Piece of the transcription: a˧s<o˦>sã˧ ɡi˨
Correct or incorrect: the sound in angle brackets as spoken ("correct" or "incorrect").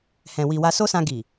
correct